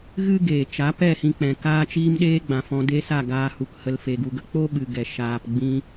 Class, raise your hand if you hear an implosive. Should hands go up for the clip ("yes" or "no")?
yes